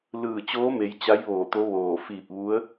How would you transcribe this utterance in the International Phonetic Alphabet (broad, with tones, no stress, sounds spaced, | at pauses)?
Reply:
l ɯː˧˩ t͡ɕ oː˧˥ m e˩˧ j t͡ɕ a˧˥ j ʋ oː˧˩ t̪ o˧˥ ʋ oː˧˩ f iː˧˩ p̚ ʋ u˧˥ ə̯